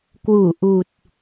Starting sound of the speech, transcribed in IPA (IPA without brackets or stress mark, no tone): k